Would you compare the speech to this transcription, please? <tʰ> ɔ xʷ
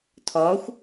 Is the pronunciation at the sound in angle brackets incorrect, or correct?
correct